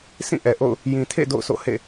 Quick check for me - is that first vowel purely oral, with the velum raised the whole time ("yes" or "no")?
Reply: no